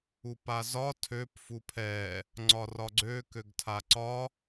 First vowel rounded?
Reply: yes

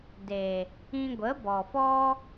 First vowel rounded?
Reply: no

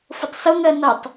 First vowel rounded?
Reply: yes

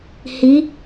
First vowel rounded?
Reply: no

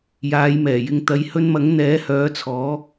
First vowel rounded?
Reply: no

